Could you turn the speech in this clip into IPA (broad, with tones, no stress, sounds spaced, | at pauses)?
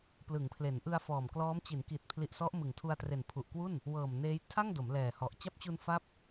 p l ɯ˩˦ ŋ pʰ l e˩˦ n ʔ ɯ˧ a̯ f ɔː˨˩ m k l ɔː˦˥ m t͡ɕ i˩˦ n k i˨˩ t̚ pʰ l i˨˩ ʔ s ɔ˦˥ ʔ m ɯ˨˩ ŋ tʰ u˧ a̯ t r e˨˩ n pʰ u˨˩ ʔ k w u˥˩ n | w ɤː˨˩ m n eː˦˥ j tʰ a˥˩ ŋ d o˩˦ m l ɛː˨˩ h ɔ˨˩ ʔ t͡ɕ a˦˥ p̚ t͡ɕ u˧ n f a˦˥ p̚